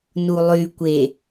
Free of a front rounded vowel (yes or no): no